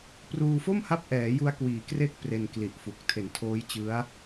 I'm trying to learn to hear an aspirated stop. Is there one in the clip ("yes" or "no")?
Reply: yes